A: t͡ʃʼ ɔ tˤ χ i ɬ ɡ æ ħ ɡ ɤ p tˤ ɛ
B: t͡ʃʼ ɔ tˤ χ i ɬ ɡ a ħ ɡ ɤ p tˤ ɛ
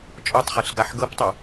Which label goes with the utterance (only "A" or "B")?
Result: B